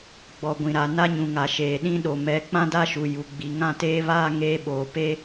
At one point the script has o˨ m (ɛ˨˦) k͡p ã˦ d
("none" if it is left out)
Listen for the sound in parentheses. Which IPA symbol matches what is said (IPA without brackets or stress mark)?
ɛ˨˦